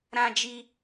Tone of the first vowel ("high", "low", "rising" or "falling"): high